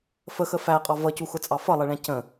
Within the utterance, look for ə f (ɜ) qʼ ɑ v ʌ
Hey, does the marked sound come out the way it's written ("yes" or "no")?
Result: no